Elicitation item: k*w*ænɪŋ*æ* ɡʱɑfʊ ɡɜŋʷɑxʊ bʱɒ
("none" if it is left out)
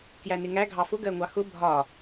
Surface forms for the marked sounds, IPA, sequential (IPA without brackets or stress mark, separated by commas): j, æ